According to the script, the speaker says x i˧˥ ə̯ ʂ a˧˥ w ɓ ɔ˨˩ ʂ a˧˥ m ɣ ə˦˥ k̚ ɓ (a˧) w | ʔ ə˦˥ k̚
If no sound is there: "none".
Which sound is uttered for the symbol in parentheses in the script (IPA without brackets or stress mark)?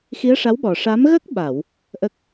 a˨˩˨